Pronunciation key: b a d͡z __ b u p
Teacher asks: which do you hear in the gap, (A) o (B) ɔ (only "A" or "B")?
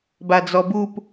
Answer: B